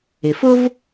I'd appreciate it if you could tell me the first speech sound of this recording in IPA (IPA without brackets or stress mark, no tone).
ɪ